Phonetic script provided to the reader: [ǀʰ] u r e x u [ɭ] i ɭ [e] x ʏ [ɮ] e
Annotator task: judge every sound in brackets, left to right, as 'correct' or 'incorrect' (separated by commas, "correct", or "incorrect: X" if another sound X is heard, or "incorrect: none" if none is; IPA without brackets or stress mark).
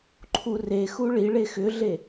incorrect: ǃʰ, correct, correct, correct